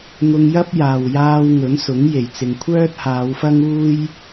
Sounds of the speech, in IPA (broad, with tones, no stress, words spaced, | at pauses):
ŋʊ˧ŋjɐ˥p̚jaː˨wjaː˧w ŋɵ˨˥nsʊ˨˥ŋ je˨˩jt͡sɪ˨ŋkʷʰœː˥t̚ haː˨˧wfɐ˥ŋuː˥j